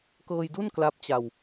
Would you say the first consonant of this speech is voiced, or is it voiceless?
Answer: voiceless